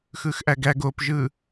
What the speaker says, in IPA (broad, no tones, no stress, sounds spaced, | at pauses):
x ɯ x ʔ æ ɡ æ ɡ o p ʒ ɯ